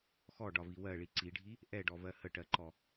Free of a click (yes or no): no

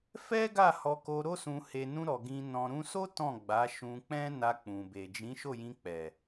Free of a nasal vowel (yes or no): no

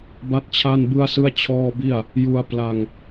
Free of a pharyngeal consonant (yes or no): yes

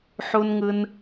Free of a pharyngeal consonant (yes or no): no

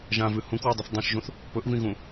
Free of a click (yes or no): yes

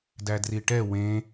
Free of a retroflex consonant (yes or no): no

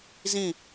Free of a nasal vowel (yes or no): no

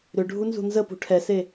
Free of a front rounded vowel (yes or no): no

